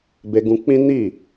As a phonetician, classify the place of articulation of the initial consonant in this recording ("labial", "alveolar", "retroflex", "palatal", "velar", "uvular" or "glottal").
labial